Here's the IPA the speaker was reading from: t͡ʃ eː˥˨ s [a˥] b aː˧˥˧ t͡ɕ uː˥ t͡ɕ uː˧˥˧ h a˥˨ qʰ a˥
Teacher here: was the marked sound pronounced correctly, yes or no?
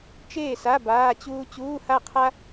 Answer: no